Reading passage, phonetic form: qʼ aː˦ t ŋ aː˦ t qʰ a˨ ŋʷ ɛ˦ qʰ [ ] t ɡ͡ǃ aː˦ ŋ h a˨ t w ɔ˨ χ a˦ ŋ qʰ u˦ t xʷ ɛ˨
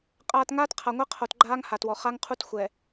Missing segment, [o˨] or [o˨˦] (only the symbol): o˨